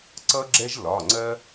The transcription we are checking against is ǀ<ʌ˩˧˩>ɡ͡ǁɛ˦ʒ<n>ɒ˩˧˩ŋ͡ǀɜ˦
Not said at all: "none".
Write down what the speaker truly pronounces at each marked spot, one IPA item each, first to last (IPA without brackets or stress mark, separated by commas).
ʌ˦, l